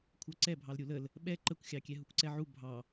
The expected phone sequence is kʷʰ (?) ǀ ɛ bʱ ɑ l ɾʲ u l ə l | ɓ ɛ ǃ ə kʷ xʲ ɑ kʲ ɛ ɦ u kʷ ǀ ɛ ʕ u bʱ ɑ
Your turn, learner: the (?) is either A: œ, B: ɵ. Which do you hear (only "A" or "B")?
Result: A